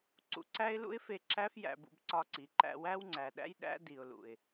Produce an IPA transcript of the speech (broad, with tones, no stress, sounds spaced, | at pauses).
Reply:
ǀ ṵ˧ ǀ æ˦ ɪ̯ l ṵ˦ ɪ̯ f e˧ ǁ æ˦ f j æ̰˧ b ṵ˧ b ǀ ɒ˧ ǀ i˨ ǃ æ̰˧ w æ˦ w ŋ͡ǀ æ˨ ɗ æ̰˦ j ɗ æ̰˦ d i˨ ʊ̯ l ṵ˨ ɪ̯